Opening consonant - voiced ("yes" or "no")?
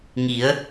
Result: yes